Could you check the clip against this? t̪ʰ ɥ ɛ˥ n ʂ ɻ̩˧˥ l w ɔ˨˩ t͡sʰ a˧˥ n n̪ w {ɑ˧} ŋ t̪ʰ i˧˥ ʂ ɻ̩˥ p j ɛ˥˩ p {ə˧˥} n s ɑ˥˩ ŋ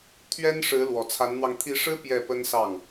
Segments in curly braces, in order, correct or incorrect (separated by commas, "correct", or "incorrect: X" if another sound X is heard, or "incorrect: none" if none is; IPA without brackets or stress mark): correct, incorrect: ə˥